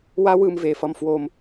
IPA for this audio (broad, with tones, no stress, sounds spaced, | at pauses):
w a˦ w ɯ˧ m v e˨ f ʌ˧ m f w o˧ m